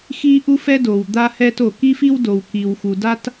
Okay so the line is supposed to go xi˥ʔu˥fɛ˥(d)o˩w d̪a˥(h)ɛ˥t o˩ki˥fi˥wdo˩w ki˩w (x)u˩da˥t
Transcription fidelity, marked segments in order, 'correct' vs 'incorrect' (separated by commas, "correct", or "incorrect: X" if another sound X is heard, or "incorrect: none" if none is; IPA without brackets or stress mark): correct, correct, correct